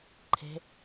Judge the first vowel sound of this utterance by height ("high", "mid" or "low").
mid